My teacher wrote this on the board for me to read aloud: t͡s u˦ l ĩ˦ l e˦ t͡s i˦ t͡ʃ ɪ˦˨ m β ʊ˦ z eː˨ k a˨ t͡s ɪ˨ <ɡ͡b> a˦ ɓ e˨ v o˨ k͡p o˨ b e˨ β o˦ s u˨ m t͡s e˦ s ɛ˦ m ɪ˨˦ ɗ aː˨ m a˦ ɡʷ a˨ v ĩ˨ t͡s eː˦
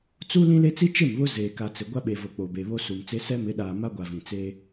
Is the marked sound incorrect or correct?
incorrect